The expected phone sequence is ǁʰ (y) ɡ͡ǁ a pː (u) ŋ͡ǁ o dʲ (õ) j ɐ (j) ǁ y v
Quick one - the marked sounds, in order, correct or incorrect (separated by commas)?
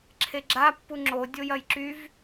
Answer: incorrect, correct, incorrect, correct